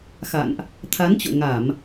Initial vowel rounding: unrounded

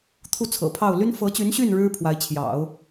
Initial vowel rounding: rounded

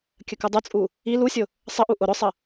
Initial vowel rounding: unrounded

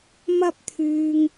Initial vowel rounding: unrounded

